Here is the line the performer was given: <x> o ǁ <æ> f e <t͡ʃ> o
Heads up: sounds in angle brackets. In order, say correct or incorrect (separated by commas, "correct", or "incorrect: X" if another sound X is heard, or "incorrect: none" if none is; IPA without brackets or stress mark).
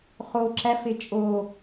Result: incorrect: χ, correct, incorrect: t͡ʃʼ